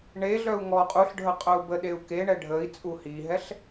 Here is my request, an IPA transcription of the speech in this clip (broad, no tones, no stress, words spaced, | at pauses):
ɳeɮœu̯ ŋɔ qʼuɬɖʱə qʼœu̯bəɗeu̯ keɳɛ ɖʱəi̯ t͡sʼuhiɦɛɬ